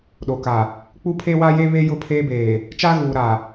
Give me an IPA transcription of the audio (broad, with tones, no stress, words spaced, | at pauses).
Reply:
ɗo˨ka˨ | k͡pu˦pʰe˦wa˦je˦ βe˦jʊ˦˨pʰeː˦beː˨ | t͡ʃa˦ɣuː˨ ɾa˨